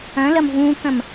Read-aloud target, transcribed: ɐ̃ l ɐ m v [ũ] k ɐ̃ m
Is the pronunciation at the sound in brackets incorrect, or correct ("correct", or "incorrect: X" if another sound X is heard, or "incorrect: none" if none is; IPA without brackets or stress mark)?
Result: correct